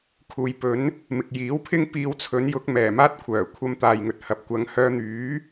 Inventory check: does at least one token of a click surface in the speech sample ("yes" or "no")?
no